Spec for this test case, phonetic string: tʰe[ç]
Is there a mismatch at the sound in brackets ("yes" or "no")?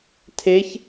no